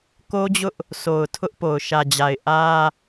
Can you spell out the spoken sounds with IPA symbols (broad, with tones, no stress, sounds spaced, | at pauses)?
k o˦ d͡ʑ ʊ˦ ʔ | sʰ o˨ ʊ̯ tʰ ʊ˦ ʔ p o˨ ʊ̯ ʃ ä˨ d͡ʑ a˨ ɪ̯ ʔ ä˦